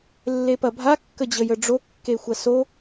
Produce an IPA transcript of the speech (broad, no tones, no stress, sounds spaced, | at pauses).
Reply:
lː e p ɐ bʱ a kː ə d͡ʑ ə j ə ɖ͡ʐ o kː e xʷ ɐ s o